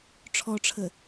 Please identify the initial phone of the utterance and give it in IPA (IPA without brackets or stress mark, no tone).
ʈ͡ʂʰ